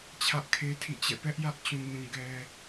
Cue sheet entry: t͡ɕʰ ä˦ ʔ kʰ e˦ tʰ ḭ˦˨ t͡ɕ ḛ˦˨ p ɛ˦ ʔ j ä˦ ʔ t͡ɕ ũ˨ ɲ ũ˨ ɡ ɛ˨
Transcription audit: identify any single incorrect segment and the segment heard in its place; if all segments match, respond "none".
ḛ˦˨ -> ɛ̰˦˨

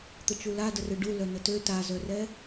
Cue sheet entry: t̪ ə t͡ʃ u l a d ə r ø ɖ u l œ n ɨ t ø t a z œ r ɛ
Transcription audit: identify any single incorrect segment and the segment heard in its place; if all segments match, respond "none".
ɨ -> ə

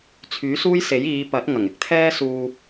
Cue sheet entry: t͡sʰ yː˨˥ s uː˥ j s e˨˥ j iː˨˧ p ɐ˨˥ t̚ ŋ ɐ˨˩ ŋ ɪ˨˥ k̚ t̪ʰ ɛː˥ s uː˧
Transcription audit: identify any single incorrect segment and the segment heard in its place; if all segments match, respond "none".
none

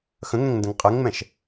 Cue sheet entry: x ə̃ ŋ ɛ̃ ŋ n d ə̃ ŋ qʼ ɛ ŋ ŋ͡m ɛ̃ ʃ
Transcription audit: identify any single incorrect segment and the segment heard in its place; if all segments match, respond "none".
none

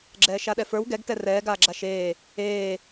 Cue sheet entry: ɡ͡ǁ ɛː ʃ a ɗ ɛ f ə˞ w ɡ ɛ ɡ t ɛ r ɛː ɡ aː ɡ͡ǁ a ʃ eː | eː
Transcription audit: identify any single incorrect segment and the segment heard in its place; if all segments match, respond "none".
none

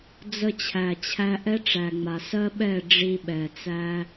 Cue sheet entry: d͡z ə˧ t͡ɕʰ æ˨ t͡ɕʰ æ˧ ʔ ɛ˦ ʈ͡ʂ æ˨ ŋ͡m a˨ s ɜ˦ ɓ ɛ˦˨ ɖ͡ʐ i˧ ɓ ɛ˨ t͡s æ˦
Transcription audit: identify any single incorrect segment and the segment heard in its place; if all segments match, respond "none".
none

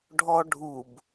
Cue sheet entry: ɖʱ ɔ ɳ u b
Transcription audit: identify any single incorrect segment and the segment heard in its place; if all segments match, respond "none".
ɳ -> ɖʱ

